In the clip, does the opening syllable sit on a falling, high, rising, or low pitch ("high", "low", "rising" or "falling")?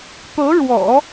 rising